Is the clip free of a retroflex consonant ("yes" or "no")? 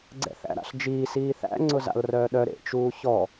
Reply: yes